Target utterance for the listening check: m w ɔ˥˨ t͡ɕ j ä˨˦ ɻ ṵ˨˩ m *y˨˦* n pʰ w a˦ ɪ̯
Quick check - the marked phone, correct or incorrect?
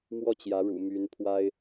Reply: correct